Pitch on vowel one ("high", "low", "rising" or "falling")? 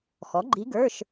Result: rising